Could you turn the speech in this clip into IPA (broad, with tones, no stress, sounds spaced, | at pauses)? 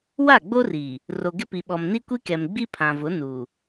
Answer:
w a˦˨ ɡ͡b o˦ r iː˨ | r o˨ ɡ ɪ˦ p i˨ ɓ ɔ˨ m n i˦ kʷ i˦ k ɛ˨ m ɡ͡b i˦ pʰ ã˨ v ʊ˨˦ n uː˨